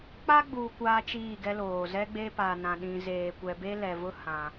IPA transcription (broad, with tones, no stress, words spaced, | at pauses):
k͡pa˦ɡ͡buː˨ kʷaː˦t͡ʃiː˦˨ɡɛ˦loː˨ zɛ˦ɡ͡be˦pa˨nã˨ ɗĩ˨zeː˨kʷɛ˨ be˦lɛ˨vʊ˦ hã˦